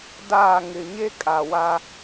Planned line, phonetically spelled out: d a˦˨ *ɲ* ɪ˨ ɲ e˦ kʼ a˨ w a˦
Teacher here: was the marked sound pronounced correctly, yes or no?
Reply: no